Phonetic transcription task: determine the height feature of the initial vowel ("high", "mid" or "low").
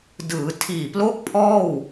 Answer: high